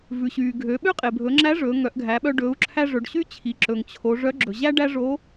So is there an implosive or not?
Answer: yes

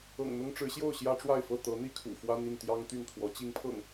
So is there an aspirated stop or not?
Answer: yes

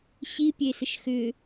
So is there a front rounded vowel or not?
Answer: yes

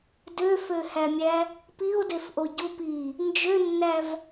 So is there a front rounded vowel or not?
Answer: yes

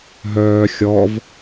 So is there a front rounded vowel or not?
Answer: yes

